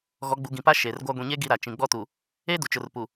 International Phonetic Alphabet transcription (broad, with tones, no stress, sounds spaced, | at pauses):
ɣ ɔ˨˦ ɡ͡b u˨ ɡ ĩ˨ p a˦ ʃ e˨ r ɡʷ a˦ ɡʷ ĩ˨ ɲ eː˦ ɡ i˦ ɾ a˨ t͡ʃ ĩ˨ ɡ͡b ɔ˦ t u˨ | eː˦ d u˨ t͡ʃ ʊ˨ r p u˨